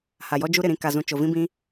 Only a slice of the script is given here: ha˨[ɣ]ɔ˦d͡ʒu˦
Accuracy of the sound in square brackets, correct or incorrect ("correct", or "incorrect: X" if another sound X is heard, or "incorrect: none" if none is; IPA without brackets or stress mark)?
incorrect: j